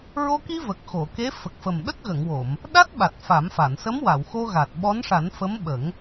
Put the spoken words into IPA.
ɹo˧ki˧ və˨˩k̚xo˨˩˨ ke˧˥ fə˨˩k̚fə˨˩m ɗə˦˥k̚ɣə˨˩˨ŋwo˨˩˨m | ɗa˦˥t̚ɓa˨˩t̚ fa˨˩˦mfa˨˩˨n sə˧˥mwa˨˩˨wxo˧ɣa˨˩t̚ ɓɔ˧˥nʂa˨˩˦n fə˧˥mɓə˨˩˦ŋ

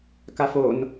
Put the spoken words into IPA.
kafon

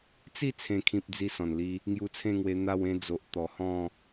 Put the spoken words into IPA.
t͡si˥˧ t͡sʰẽ˥˧kʰĩ˦p̚ d͡zi˦sɔ̃˨˩nli˦ | ŋju˧t͡sʰẽ˥˧ŋwe˧ n̪a˥˧wẽ˦d͡zo˨ʔ t̪ɔ˨˩hɔ̃˥˧

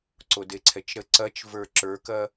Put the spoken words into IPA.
ǀodeǀʰɛt͡ʃɾə ǀɐt͡ʃvə˞ ǁə˞kɐ

